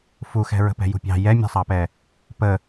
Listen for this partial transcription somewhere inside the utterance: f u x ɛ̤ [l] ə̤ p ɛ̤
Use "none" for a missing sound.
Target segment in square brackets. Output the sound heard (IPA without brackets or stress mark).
ɹ